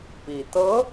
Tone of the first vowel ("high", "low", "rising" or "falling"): low